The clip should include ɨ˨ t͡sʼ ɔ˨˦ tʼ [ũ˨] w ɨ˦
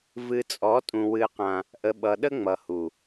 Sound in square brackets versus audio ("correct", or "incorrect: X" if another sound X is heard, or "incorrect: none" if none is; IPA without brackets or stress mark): correct